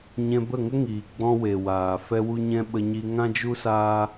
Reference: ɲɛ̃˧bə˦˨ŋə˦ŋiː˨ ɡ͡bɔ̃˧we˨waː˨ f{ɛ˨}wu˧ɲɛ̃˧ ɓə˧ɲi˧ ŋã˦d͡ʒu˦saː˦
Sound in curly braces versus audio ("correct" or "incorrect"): incorrect